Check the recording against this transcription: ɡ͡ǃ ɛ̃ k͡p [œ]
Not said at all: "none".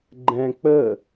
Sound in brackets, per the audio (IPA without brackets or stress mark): ə